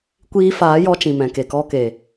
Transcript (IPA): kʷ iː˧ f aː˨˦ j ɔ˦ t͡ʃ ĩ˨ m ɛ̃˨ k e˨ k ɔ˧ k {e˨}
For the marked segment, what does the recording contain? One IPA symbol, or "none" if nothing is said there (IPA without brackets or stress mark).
e˨